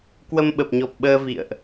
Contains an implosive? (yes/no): yes